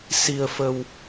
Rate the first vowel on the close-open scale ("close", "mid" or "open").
close